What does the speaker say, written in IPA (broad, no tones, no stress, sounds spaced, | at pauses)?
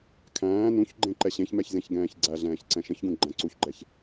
kʰ æ̃ː n ũ ç ɡ͡ǃ ẽ ǃ ɛ ɕ ẽ ç m ɛ ç z ẽ ç ɡ ɛ̃ː ç ɡ͡ǀ æ ɮ ɛ̃ː ç ǀ ɛ̃ ʃ ə̃ ç ɡ ũ ɡ͡ǃ æ̃ ǀ u ç ɡ͡ǃ ɛ ç